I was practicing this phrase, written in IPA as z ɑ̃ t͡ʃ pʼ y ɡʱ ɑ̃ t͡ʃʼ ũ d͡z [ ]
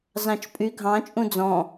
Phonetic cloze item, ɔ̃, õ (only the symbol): ɔ̃